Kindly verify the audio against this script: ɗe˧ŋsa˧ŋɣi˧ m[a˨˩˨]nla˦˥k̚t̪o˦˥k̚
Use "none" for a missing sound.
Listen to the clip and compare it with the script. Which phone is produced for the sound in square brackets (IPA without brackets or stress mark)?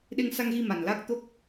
a˨˩